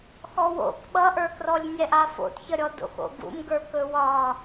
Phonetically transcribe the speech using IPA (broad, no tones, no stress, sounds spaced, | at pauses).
x ɔ w o̰ k ɓ ʌ ʔ ə˞ k r ɔ lʲ nʲ ɛ ʔ a f o̰ t ç ʌ ɾʲ ɔ d o̰ x o̰ ɡ ṵ m ɡ ə˞ k ɵ w ɒ